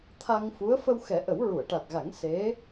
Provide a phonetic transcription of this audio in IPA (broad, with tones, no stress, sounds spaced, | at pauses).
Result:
t̪ʰ a˧ ŋ f u˧˥ ə̯ f ə˧ w x ɛ˨˩˦ ʔ ə˨˩˦ w ɹ u˨˩˨ ə̯ ʈ a˨˩ t̚ ɣ a˨˩˦ ŋ s e˧˥